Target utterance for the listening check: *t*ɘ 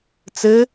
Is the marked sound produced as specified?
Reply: no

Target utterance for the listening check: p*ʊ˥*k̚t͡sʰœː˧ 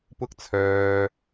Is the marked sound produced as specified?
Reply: yes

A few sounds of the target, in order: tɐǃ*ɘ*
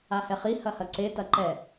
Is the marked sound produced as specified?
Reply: no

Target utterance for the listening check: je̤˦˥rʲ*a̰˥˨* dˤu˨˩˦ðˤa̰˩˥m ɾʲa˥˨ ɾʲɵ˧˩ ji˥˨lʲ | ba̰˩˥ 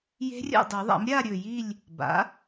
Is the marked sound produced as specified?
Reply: yes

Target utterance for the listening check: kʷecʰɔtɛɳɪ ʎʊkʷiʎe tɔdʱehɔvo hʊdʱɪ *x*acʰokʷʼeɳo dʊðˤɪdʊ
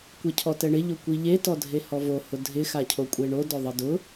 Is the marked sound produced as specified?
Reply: yes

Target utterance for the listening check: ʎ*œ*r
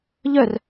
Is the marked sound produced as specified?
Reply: yes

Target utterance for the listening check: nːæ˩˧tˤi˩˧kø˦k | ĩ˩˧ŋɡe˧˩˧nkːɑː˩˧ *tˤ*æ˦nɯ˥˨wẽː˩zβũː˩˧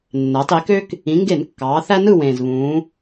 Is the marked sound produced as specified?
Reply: no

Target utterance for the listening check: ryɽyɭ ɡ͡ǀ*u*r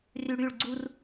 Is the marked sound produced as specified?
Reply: yes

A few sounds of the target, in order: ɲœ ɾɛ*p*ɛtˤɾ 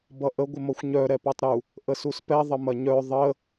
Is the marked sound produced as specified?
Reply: yes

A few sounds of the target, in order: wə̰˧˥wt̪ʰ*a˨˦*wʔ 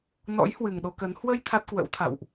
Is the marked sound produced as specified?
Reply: no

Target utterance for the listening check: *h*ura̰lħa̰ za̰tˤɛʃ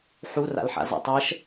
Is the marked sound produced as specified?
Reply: no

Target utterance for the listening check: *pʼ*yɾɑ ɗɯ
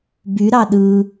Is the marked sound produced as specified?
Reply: no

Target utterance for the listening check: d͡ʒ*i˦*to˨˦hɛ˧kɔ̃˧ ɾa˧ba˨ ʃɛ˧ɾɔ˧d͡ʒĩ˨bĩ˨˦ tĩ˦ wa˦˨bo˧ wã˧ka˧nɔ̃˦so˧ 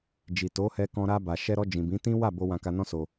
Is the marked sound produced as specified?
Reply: no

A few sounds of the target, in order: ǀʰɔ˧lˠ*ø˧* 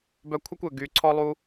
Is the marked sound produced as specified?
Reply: no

